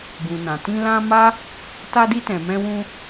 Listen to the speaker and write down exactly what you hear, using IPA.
bũ˨nã˨tĩ˧ lã˧ ma˦ | ta˧di˧tɛ̃˨ mɛ̃˧wũ˧

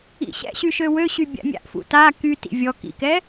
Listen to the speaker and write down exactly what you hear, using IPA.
ḭɕɛ̰ɕy ʃøwøɕy bʲa̰mʲa̰ʔfṵ ta kytḭ vʲɔ kḭkɛ

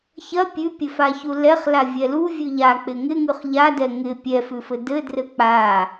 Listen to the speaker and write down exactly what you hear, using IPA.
çɐ pʲʉpʲɘfaçu lɛχlavʲɛ luvʲʉ ʎak͡pɪ ŋɪŋʉχ ʎadɛ ŋɪ pʲɛfʉfɘ dɘdrɘ k͡pa

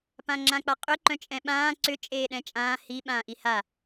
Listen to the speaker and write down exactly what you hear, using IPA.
pãŋ͡ǁãk͡paqʼʏ ǃœ̃t͡ʃʼɛ̃ɓãː ǀʏ t͡ʃʼeːɗɛ̃t͡ʃʼãː hi ɓãːʔiha

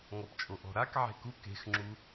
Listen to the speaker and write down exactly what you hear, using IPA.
ŋɔpt͡ʃʼoʔɔ̤ɾak ʕe̤ku ke̤xŋ͡ǁu

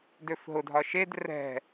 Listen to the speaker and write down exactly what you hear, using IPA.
døfɦʊdʱɒ ʃed rɛ̤

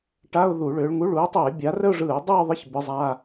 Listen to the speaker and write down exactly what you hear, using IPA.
ʈa˧˥˧ʊ̯ ðu˧˩˧ɭʏː˨˦ɭŋu˧˥˧ɭ u˨˦ɪ̯tˤɯ˧˩˧ɪ̯bʲa˨˦ rə˥˧ʊ̯ʐɯː˧˩˧ʊ̯dˤʏː˥˧ðˤə˧˥˧ç bɯ˨˦zˤa˧˥˧

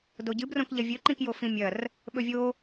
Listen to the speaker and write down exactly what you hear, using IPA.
doɟɨbrõkʎɐ vʲɵǃĩkjo fĩmʲɐr | ɓɵvʲo

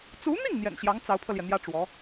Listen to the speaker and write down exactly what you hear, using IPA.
t͡su˧˥n̪i˥˩ŋ n̪jɛ̰˨˩nɕjɑ˧˥ŋ t͡sɑ˧˥ʊ̯pʰɤ˧ljɛ˩n̪jä˥ ʈ͡ʂwɔ˧˥

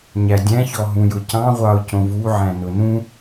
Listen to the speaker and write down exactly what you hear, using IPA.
ɲædʲæ̃çɔɦũ jʊcɑ̃ ʁʷɑʊ̯cõvuʕæ̃ nʊnũ

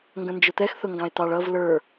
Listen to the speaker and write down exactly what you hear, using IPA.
ŋɡə̃nd͡ʒʊt̪ɛx θʊŋɡɑ̃e̯t̪ɑɭ ʌv lə˞

